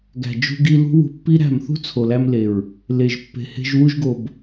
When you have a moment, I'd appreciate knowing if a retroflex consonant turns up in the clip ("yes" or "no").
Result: no